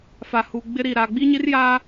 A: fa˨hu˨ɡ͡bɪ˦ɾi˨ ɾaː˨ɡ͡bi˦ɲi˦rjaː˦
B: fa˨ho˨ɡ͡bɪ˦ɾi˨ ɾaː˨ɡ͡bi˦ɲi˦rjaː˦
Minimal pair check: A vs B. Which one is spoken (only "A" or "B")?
A